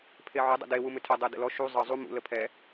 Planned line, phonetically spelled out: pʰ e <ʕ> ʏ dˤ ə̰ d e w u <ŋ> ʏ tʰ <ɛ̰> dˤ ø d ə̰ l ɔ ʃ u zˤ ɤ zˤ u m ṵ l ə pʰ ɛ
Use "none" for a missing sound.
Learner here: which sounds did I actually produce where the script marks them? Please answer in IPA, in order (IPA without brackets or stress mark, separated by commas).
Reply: ʕ, m, ɛ